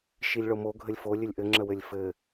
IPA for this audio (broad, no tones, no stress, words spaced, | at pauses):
ʃilʲɭomo ɡʱəlʲfo lʲɘlʲʔɘ ŋ͡ǁəwɘlʲfɘ